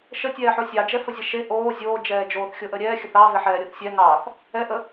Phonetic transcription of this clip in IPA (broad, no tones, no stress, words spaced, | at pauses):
ʃətʲɛːħo sʲɑd͡ʒɛfəzʲɛ ʃe ʔoː zʲoːd͡ʒɛː d͡ʒoːθxʲoʔəɾʲɛː xʲəθɑ veħɛːɾʲoθsʲɛ ŋɑθ | ɛʔə